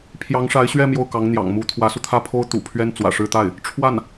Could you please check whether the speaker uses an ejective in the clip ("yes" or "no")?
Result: no